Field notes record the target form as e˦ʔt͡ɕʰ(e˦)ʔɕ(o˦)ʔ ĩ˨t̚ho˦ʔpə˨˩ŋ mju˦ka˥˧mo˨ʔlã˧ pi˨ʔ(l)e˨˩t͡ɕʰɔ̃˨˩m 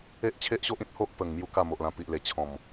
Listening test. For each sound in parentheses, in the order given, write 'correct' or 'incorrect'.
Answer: correct, correct, correct

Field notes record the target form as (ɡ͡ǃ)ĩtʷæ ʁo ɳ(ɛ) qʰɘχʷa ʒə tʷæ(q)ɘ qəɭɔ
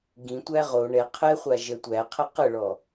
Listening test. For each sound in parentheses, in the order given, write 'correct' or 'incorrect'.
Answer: incorrect: ɡ, correct, incorrect: qʰ

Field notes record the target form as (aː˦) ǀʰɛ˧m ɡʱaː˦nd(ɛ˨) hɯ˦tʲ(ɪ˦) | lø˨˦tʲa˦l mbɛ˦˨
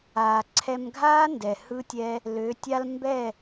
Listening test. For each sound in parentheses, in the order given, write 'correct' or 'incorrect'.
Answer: incorrect: aː˨, correct, incorrect: ɛ˦

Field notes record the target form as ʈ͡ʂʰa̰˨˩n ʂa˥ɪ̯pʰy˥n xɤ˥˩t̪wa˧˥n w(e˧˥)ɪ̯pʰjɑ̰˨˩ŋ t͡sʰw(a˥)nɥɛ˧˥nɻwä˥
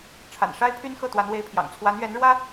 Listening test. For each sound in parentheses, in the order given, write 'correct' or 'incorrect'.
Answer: correct, incorrect: a˧˥

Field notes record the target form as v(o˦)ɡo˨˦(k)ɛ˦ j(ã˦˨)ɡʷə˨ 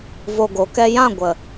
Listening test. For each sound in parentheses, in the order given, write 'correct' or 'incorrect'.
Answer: incorrect: o˧, correct, correct

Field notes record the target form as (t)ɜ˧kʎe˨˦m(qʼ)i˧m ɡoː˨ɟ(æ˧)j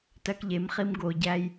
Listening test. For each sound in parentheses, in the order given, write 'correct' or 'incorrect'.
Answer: correct, incorrect: χ, correct

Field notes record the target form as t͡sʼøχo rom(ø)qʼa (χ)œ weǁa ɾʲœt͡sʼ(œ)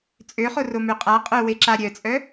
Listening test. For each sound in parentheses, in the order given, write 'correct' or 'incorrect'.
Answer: correct, incorrect: qʼ, correct

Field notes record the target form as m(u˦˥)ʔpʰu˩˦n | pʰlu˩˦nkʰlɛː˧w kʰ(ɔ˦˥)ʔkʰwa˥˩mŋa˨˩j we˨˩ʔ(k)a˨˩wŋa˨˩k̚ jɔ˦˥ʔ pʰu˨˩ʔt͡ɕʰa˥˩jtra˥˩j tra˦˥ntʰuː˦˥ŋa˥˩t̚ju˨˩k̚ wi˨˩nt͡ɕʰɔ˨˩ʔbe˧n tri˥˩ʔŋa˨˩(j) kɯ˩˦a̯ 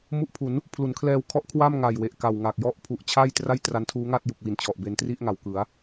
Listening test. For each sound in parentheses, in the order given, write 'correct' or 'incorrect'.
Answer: correct, correct, correct, incorrect: w

